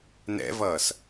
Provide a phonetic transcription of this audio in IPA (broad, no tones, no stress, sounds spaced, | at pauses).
n ɛ̰ v ʌː s